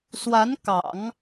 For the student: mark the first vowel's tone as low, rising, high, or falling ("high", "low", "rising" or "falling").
rising